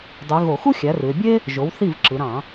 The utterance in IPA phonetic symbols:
dˤy˩˧ ɣo˧˩˧xu˥ xʲæ˩˥rɯ˩˧e̯ bʲe˥ | ʒo˩˥wθi˥˩v ǁɯ˩˧ɾɑ̃˧˩˧

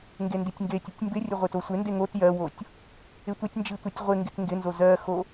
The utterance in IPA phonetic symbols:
ŋɡenditʲŋɡetʲətʲ mbɪrʲə ʁʷɪtosʷɪnde ŋot jɜwotʲ | ɪtʷɪtʲnd͡ʒi tʷitʲʁʷɪŋɡɪt ŋɡɪnzo zɜxo

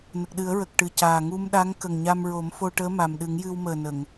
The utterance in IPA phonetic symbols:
nə˨˩k̚ɗɨ˨˩˦ə̯ɹə˨˩k̚ ʈɨ˨˩caː˨˩ ŋu˧mɗa˧˥ŋ kə˨˩ŋɲa˧mɹo˨˩˦m fo˧ʈəː˧˥ ma˨˩mɗɨ˨˩˦ŋjɨ˧w məː˨˩nə˨˩˨ŋ

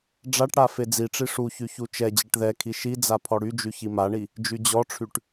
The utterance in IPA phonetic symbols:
ɖ͡ʐaʈɽa fed͡ziʈ͡ʂi ʂuçy çut͡ʃɛd͡ʑɛʈ ðɛkʰi ʃid͡za pʰɔɽyd͡ʒy çimaɳi | d͡ʒyd͡ʑɔʈ͡ʂʰyʈ

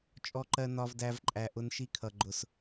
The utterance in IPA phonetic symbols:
t͡ʃʼɔ˦ǃɜ˦ nɒ˦vdæ˦vǃʼæ˧ ʔʊ˧nʃi˧kʰʌ˨ ɡ͡ǃʊ˨s

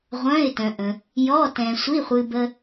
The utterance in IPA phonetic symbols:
ʁʷœ̃˧˥˧ɪ̯ tœ̃˧ʔə̃˧ | jɔ˧˥˧ tɛ̃˧ sʷi˧˥˧χʷɨː˧ bə˧

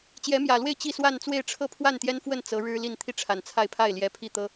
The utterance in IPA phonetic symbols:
t͡ɕjɛ˧˥mjä˨˩lwe˥˧ɪ̯ t͡ɕi˥˧swa˥˧nt͡swe˥˧ɪ̯ ʈ͡ʂʰɤ˥˧pʰwa˥˩nt̪jɛ˥nfwə˥˩n t͡sɤ˧˥ɻɻ̩˥li˥˧n t̪ʰi˥˩ʈ͡ʂʰa˨˩nt͡sʰa˥˧ɪ̯pʰa˥˩ɪ̯ ljɛ˧˥pʰi˥˩t̪ɤ˥

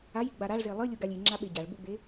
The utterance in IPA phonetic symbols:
ajiɡ͡ba ɾaɭze lˠɨlʲuɡalʲ iŋ͡ǁaɓe ɟaɭbuɡ͡be

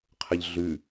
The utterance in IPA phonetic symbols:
qʰəʎɮʉ

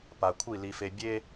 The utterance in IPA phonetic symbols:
pa˨kʷʰi˦˨ li˨fe˨ bʲe˦

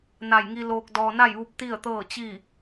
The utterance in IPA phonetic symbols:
na˧˩jŋi˧ loː˧k̚dɔː˧ na˥˨jʋu˧˥p̚ t̪i˥˨ə̯t̪ɤː˥˨ t͡ɕi˥˨

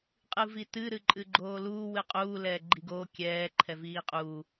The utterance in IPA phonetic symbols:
qʼɨvitɨ ɾɨǃʼɨɡ͡ǃoːluː wɨqʼuː lɛːɡ͡ǃiɡoː kʲɛː ǃʰɛviːqʼuː

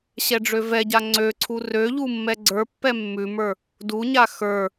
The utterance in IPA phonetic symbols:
ɕɛɖ͡ʐøvɛɟa ŋ͡ǀøǀʰu røʎu mːɛɡ͡ǀə˞pːɛ mːʉmə˞ | duɲa xə˞

